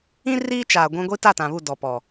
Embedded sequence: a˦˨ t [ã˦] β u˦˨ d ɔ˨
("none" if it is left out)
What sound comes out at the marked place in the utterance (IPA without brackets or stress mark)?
ã˨